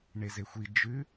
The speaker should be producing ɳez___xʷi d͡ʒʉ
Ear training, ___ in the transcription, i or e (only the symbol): e